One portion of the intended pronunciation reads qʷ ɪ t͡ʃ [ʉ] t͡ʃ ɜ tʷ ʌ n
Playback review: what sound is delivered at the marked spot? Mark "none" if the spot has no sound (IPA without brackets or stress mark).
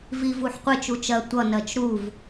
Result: u